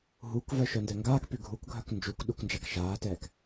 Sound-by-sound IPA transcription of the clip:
ɦ u k v œ ʃ œ n d ɛ ŋ ɡ aː k p y ɡʱ u k ɡʱ œ k n d͡ʒ u k ɗ u k n d͡ʒ a k ʃ aː t ɛː k

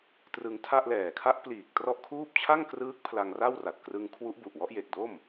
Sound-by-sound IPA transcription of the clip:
t r ɯ˧ ŋ tʰ a˥˩ ʔ l ɛː˨˩ kʰ a˦˥ ʔ p l iː˨˩ k̚ t r ɔ˥˩ ʔ kʰ uː˥˩ p̚ t͡ɕʰ a˥˩ ŋ k r ɯː˦˥ k̚ pʰ l a˧ ŋ r a˥˩ w r a˨˩ t̚ k r ɯ˧ ŋ kʰ w u˦˥ ʔ b u˨˩ ʔ w ɔ˦˥ ʔ j e˨˩ k̚ d o˥˩ m

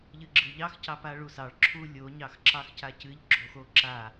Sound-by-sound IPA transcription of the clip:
ʎ ɨ ɡ͡ǁ ɨ ʎ ɑ x c ɑ p a ɭ u s ɑ ɭ ǁʰ u lʲ o ɲ ɑ x ǁ ɑ x c a c ɨ ʎ ɡ͡ǁ o x o ǁ a

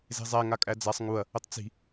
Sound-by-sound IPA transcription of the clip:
z e̤ zˤ æ ŋ a kʼ æ d͡z a sˤ ŋ u ɐ̯ | ə tˤ t͡s i̤

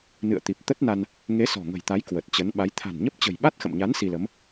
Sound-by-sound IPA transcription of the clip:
n ɨ̰˧˨ ə̯ t̪ i˨˩ p̚ t̪ ə˦˥ t̚ n a˧ n | ŋ e˨˦ s ɔ̤˨˩ ŋ ə̤˨˩ j t̪ a˨˦ j k w ə˨˩ t̚ t͡ɕ ə˨˦ n ɓ a˨˦ j t̪ʰ a̤˨˩ n ɲ ə˦˥ p̚ t͡ɕ ə̤˨˩ j ɓ a˦˥ t̚ x ə̰˧˨ m ɲ a˨˦ n s i˧ l ə˨˦ m

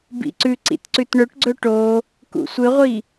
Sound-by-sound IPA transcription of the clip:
b ḭ ǀ ʉ ǀ ḭ t ǀ ʉ t ɳ ɵ ʈ ɡ͡ǀ ɵ ʈ o | k ṵ sʷ ɨ ʁʷ i

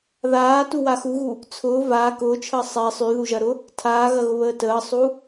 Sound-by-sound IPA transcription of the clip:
ð aː t u w a x u ɣ u | t͡sʰ ʊː v aː k ʊː t͡ʃʰ əː sˤ ɛ sˤ y ð u ʒ ɐ ɾ ʊ | tʰ aː ɣ ɐ ɣ ʊ β əː t əː sˤ u

